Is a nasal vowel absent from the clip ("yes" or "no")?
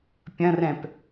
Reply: no